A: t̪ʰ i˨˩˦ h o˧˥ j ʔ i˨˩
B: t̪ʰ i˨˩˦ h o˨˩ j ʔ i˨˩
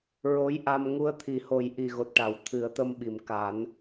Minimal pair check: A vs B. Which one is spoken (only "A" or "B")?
B